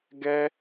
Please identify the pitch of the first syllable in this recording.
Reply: high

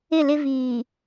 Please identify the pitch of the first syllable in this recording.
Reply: falling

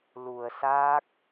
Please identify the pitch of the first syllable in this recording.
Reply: low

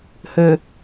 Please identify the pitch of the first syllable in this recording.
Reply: low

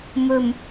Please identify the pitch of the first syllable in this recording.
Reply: low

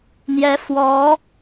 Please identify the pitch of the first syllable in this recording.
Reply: rising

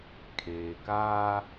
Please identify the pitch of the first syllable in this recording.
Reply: low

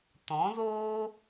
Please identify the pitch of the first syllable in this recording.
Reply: rising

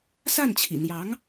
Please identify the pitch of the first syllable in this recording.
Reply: falling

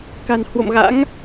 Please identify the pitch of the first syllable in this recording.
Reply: low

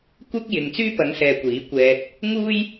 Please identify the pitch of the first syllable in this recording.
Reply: high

